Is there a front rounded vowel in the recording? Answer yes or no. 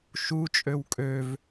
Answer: yes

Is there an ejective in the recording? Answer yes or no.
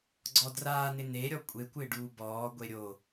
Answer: yes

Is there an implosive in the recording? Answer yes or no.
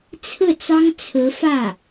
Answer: no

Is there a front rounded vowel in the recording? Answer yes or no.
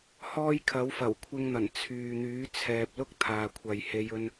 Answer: yes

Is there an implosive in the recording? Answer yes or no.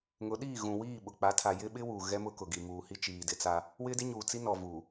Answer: yes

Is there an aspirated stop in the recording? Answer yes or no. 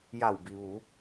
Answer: no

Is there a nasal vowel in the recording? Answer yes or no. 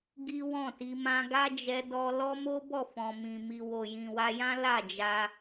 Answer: yes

